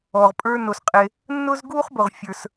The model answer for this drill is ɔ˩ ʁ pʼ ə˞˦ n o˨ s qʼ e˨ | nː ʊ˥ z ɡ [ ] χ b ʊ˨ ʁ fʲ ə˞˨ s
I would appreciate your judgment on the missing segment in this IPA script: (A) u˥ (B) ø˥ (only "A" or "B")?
A